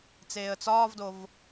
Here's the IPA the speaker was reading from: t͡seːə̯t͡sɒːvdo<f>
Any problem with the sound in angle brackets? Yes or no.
yes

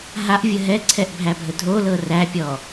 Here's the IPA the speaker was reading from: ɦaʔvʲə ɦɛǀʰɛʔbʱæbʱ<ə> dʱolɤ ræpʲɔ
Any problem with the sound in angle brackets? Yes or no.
no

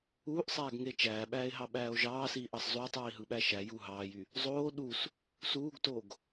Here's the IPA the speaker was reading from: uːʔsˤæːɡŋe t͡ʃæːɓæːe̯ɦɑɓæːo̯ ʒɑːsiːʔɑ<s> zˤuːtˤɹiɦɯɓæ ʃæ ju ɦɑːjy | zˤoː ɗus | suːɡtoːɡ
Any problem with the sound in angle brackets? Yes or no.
no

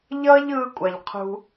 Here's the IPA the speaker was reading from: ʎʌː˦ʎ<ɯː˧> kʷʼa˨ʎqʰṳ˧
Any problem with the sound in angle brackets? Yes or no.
no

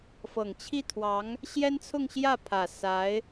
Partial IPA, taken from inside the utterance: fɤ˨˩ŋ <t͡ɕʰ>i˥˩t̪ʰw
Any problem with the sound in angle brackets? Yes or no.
no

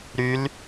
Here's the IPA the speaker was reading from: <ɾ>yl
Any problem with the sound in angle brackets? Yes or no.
no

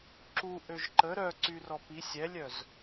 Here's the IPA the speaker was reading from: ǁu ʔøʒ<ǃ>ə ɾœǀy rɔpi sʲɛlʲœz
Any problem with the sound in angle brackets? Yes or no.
no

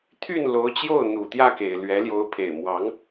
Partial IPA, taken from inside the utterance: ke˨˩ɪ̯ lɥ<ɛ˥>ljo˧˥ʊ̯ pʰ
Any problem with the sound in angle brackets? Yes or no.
yes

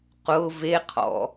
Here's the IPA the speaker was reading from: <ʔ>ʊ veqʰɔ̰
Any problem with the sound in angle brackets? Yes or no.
yes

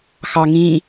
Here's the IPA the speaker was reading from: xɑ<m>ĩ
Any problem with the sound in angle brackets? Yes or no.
yes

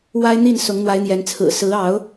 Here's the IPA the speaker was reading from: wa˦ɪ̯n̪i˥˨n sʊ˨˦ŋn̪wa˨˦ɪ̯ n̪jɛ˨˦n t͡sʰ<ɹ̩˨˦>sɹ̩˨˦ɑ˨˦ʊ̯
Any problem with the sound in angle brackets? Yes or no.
yes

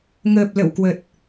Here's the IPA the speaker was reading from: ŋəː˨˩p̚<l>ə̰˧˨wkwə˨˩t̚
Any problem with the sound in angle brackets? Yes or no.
no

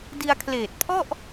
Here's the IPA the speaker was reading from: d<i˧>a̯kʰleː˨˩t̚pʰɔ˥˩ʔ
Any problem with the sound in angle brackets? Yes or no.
no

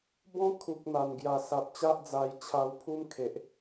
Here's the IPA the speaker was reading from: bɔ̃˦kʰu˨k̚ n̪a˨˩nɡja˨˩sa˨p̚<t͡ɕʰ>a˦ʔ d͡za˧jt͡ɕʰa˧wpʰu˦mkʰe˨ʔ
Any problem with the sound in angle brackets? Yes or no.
yes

